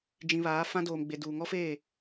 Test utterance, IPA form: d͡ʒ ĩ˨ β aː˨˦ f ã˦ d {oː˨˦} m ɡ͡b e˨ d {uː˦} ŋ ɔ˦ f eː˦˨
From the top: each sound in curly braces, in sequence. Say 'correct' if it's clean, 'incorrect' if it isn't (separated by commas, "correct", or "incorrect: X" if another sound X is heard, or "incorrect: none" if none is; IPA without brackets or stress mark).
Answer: incorrect: oː˨, incorrect: uː˨